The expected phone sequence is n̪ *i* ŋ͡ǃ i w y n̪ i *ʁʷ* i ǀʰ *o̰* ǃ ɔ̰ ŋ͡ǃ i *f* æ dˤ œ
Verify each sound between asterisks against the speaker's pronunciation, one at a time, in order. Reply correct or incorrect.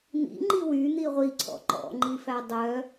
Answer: incorrect, correct, incorrect, correct

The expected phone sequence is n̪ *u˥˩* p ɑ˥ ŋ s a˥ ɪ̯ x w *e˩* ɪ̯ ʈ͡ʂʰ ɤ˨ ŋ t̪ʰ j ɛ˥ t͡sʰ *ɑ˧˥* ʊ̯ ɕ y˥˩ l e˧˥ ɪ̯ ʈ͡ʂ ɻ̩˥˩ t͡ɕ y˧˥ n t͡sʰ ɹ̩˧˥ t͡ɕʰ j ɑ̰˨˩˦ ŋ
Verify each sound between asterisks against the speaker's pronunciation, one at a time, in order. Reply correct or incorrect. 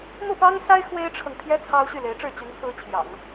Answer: correct, incorrect, incorrect

